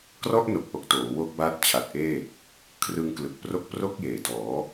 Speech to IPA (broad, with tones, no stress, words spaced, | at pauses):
krɔ˥˩ʔno˨˩k̚ʔo˨˩k̚ toː˩˦ wo˦˥k̚ba˦˥t̚ t͡ɕʰa˨˩t̚ʔeː˥˩ | kʰrɯ˧ŋklɯ˨˩k̚pro˦˥k̚pro˥˩k̚ jeː˩˦dɔː˩˦